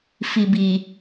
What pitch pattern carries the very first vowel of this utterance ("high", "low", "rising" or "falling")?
low